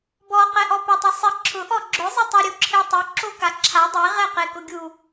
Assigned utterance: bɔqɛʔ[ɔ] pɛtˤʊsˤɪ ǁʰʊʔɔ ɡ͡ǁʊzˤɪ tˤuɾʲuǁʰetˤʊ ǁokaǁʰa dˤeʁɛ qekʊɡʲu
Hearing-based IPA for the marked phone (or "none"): ɔ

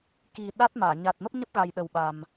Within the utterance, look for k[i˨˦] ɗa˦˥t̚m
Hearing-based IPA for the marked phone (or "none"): i˨˩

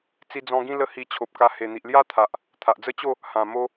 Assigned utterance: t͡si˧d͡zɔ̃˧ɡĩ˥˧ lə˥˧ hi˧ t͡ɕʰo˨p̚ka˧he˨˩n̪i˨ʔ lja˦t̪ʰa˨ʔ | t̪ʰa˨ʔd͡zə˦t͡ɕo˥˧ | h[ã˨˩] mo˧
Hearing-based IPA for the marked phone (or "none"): ã˨˩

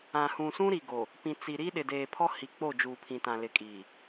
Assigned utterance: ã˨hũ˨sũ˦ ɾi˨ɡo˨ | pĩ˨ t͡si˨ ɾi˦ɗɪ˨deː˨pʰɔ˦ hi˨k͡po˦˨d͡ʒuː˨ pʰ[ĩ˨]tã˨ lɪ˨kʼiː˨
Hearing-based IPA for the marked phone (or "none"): ĩ˨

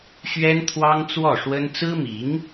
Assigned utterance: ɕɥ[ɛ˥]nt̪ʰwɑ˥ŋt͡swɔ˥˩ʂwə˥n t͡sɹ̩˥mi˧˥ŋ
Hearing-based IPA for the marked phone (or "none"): ɛ˥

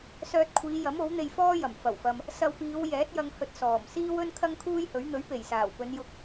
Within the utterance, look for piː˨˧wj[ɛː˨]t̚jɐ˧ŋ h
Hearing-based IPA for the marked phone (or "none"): ɛː˨˥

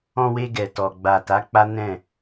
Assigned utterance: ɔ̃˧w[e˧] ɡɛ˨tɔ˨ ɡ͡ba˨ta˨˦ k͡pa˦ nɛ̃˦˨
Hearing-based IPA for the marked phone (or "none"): e˧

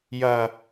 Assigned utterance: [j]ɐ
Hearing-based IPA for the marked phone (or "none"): j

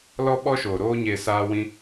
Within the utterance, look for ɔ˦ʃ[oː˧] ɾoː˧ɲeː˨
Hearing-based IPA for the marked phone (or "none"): oː˨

